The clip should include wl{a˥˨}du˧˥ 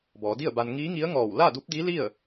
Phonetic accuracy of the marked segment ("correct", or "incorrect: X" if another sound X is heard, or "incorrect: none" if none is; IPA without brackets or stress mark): correct